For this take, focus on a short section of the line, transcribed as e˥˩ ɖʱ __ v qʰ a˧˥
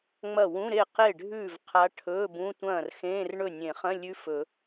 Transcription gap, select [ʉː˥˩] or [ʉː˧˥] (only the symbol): ʉː˥˩